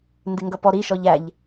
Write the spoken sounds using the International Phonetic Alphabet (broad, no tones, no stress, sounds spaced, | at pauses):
n d ɪ ŋ ɡ ʌ p ɔ ɾ i ʃ ɔ ʎ æ ʎ